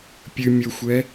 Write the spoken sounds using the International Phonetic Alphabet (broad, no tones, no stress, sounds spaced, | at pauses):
pʲ ɨ mʲ o xʷ ɛ